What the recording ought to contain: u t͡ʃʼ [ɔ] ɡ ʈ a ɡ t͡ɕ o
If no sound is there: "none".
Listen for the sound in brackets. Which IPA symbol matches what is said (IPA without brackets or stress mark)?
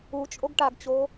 o